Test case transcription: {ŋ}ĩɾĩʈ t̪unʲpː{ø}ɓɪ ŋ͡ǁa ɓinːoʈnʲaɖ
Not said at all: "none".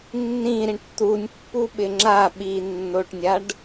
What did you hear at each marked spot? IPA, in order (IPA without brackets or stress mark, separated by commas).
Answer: nː, u